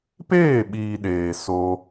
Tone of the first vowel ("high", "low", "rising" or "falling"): falling